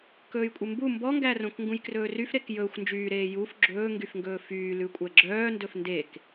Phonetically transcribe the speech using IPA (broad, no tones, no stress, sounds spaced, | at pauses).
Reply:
k ɵː j kʷʼ e m b u m b ɔ ŋ ɡ æ r õ k ŋ ɡ ũ j k r ɵː r y f ɾ e k j ɵː xʷ n d͡ʒ yː ɾ eː j u f ɡ͡ǁ ɵː ŋ ɡ y f ŋ ɡ ɵː f yː l ʉ kʷʼ æ ɡ͡ǁ œː n d ɵ f n d e k